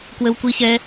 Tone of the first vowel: high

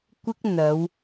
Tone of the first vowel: high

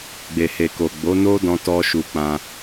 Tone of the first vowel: low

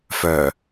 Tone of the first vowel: low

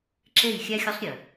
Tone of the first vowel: falling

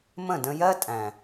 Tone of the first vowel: falling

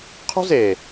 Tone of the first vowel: high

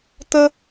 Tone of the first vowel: high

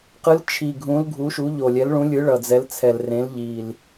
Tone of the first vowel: rising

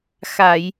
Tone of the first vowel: low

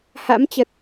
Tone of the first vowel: rising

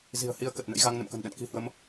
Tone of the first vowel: low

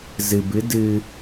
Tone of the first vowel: low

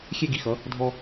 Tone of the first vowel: high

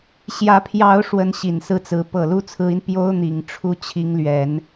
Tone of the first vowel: rising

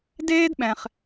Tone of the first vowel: high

